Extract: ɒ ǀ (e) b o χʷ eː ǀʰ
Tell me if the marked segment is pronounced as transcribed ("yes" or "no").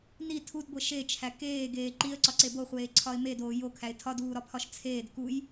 yes